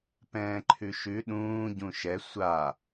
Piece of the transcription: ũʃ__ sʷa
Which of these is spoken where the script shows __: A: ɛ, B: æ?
A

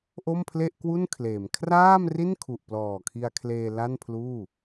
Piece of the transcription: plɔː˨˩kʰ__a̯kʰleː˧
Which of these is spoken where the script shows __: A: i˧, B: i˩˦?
A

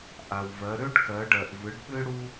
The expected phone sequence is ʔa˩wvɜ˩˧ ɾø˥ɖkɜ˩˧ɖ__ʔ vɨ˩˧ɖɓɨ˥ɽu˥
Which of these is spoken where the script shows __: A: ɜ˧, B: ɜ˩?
B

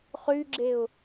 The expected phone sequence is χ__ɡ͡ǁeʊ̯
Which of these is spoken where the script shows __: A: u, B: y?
B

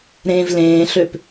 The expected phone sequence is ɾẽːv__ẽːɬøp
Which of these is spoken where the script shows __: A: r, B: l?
B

